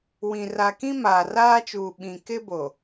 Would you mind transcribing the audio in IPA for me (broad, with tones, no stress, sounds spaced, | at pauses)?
w ĩ˨ r a˨ k ĩ˦ m aː˨ r aː˦ t͡ʃ uː˨ ɓ ĩ˨ k ɪ˦ b o˨